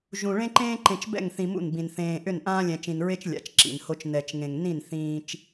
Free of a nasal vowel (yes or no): no